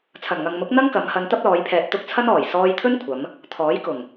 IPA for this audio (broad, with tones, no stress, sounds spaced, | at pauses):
t͡sʰ ɐ˨˩ n ŋ ɐ˨ ŋ m ʊ˨˥ k̚ n̪ ɐ˥ ŋ k ɐ˨˧ m h ɐ˧ n t̪ ɐ˥ p̚ l ɔː˨˧ j pʰ ɛː˨ t̚ t̪ ʊ˥ k̚ t͡sʰ ɐ˥ n ɔː˨˩ j s ɔː˧ j t̪ʰ ɵ˥ n kʷʰ ɐ˨˧ m | t̪ʰ ɔː˨˥ j k ʊ˨˩ ŋ